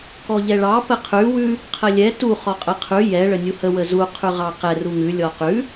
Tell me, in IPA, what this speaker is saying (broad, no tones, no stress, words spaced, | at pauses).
kɔʎɛɭɑ pəqʰʉ wʉ | qʰəlʲɛ tu χɔqʼə qʰʉ jɛ ɭənʲuhə wəzu qʰʉʁɑqɛ ruŋʉ lʲɔqʉ